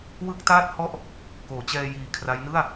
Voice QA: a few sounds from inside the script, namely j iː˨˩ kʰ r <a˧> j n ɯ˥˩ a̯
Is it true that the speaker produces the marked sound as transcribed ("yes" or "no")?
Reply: no